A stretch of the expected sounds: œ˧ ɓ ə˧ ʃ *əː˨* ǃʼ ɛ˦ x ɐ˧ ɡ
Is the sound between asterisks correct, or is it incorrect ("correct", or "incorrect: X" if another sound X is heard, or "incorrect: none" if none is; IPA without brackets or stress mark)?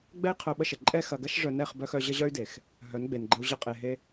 incorrect: ə˨